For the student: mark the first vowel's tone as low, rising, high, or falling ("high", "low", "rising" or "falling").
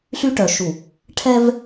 high